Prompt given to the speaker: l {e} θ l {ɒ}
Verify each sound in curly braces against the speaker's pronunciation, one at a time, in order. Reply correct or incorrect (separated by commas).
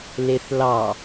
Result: correct, incorrect